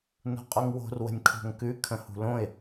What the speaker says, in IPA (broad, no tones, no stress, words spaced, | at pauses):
no̤qʼoŋwo̤r wə̤nʲkʰo̤ŋkʉ kʰə̃hṳlõɪ̯